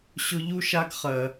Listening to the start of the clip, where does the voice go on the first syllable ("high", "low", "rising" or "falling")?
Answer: high